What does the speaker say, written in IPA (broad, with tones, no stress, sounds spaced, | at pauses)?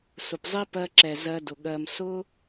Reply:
s ʊ˨ p zˤ i˦ p ɜ˧ ǁ ɛ˨ z ɜ˧ d ʊ˨ ɠ ɜ˧ m s ʊ˦